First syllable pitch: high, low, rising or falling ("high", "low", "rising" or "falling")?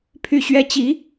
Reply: falling